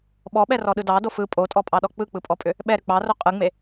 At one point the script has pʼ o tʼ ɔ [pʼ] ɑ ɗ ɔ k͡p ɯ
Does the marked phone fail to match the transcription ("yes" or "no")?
no